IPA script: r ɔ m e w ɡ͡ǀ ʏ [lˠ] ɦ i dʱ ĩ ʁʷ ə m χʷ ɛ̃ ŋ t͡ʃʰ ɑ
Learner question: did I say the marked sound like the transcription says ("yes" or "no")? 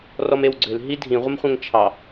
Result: no